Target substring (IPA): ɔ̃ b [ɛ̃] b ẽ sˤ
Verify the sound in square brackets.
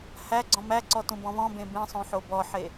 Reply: incorrect: ẽ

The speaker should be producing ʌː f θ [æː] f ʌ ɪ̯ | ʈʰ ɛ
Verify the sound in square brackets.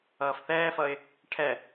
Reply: incorrect: ɛː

